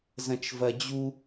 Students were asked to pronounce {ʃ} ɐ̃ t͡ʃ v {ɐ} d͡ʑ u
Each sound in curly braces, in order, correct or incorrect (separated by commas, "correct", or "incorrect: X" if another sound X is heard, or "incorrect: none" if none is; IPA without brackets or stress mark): incorrect: z, correct